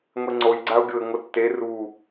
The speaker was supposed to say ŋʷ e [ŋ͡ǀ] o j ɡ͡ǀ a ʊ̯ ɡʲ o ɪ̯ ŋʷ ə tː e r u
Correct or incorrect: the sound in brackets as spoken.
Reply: correct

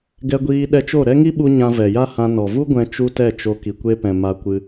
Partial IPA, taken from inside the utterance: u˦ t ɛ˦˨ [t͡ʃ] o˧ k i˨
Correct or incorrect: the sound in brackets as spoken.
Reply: correct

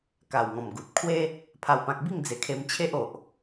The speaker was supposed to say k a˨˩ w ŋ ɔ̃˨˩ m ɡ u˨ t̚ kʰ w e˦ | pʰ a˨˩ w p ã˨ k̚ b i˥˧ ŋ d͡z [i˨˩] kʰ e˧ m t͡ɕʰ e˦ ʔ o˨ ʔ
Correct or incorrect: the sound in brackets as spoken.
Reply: incorrect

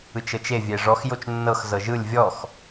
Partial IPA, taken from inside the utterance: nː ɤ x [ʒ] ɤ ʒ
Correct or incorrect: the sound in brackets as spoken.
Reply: incorrect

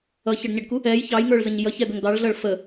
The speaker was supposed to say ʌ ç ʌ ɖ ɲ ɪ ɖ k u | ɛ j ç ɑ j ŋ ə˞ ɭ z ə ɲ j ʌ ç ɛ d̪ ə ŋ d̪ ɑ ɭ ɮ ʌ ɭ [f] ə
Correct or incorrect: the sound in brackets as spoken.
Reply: correct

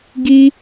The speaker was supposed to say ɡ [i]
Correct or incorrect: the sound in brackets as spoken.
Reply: correct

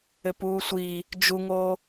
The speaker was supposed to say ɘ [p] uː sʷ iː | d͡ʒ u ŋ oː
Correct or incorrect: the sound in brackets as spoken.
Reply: correct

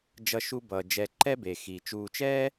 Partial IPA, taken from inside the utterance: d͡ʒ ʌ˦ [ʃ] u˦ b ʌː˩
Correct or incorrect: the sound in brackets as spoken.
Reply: correct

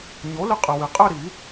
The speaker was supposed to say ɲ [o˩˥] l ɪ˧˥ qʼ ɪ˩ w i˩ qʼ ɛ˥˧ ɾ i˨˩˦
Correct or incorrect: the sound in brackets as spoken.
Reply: correct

